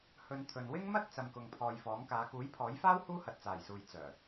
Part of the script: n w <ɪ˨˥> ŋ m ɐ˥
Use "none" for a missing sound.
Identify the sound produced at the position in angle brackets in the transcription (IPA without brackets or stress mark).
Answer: ɪ˥